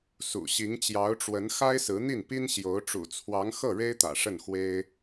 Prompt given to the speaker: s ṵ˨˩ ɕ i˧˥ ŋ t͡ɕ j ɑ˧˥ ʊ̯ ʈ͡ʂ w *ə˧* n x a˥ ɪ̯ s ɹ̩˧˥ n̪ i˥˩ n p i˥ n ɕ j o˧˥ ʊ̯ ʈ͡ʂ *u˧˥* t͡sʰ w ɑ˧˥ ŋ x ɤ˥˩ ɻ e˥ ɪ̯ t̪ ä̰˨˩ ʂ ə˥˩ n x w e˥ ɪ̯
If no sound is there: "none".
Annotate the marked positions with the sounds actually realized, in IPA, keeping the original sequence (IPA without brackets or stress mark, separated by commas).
ə˧˥, ṵ˨˩